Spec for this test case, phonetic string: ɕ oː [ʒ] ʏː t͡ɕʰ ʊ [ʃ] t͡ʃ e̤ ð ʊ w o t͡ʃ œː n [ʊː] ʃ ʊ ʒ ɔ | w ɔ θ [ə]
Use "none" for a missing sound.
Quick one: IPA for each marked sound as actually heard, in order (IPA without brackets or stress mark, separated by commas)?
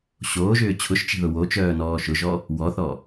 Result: ʒ, ʃ, ɔː, ɔ